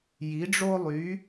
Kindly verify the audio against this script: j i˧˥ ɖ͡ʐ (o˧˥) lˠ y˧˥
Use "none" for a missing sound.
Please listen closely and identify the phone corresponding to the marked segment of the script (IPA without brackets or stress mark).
o˥